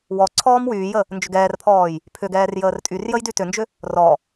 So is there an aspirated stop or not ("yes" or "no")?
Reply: yes